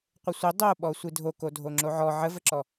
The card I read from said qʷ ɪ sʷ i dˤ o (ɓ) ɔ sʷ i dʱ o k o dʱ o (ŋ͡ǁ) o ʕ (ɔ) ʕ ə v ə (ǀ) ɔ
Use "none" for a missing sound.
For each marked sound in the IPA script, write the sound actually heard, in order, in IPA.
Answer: ɓ, ŋ͡ǁ, ɔ, ǁ

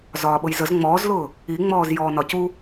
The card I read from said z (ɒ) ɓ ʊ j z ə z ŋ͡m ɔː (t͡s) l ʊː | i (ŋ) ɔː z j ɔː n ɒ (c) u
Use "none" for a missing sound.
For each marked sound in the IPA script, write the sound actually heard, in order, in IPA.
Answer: ɒː, z, ŋ͡m, c

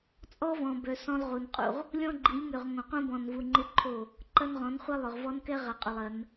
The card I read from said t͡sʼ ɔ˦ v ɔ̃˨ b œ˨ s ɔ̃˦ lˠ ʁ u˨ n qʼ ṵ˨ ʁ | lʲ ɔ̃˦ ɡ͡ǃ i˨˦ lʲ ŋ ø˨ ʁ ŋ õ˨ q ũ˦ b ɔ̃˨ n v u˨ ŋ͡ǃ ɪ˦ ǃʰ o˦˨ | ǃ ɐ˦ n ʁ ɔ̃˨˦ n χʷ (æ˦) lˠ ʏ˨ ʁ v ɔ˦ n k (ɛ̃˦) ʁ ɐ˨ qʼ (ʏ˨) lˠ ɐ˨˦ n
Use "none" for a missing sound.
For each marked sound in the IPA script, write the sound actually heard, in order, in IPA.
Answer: ɐ˦, ɛ˦, ʏ˨

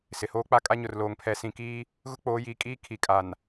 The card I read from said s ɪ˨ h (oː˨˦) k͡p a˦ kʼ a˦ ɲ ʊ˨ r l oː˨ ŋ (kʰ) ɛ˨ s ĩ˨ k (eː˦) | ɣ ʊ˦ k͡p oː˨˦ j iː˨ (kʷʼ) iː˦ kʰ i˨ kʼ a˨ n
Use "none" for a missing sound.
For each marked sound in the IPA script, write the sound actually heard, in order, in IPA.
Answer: oː˦, pʰ, iː˦, kʼ

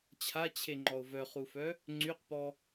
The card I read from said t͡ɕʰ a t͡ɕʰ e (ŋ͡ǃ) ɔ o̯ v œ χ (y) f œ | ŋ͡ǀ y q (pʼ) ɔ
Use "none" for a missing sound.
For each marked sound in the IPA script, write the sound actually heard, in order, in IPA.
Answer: ŋ͡ǃ, u, p

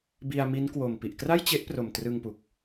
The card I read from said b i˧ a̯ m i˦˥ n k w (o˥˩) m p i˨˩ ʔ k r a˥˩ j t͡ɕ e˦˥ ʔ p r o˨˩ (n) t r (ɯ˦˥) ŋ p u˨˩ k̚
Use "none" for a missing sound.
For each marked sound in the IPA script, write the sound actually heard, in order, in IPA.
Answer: o˨˩, m, ɯ˧

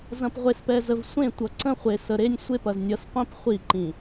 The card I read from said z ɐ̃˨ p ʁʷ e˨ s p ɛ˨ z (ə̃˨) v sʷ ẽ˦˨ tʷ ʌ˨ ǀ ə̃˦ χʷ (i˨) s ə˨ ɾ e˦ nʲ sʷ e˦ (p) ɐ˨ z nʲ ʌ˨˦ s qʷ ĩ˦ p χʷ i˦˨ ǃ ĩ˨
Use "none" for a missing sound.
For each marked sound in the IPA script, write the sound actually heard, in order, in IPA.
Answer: ə˨, e˨, p

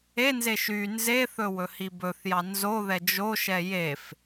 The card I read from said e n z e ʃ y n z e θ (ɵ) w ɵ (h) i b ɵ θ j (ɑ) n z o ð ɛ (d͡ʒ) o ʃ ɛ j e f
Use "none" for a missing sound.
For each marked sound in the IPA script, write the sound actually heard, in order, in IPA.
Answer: ɵ, h, ɑ, d͡ʒ

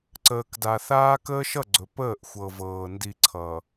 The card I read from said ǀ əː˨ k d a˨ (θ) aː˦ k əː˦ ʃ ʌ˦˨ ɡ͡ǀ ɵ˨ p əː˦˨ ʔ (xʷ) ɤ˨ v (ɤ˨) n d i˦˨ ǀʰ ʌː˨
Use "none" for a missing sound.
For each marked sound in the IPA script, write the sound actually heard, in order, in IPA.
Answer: θ, xʷ, ɤː˨

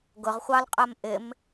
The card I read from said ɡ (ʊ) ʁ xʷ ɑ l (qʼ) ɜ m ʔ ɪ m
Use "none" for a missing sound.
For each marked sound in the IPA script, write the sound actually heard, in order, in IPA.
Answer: ʊ, qʼ

